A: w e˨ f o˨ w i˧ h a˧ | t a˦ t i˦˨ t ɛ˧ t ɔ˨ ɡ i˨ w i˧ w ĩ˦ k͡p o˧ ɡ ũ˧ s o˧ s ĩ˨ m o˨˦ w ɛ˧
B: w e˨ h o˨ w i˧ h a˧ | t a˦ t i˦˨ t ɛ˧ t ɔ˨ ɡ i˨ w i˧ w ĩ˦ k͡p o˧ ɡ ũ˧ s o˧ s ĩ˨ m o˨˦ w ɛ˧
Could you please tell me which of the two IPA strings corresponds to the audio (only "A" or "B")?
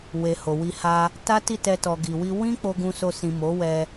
B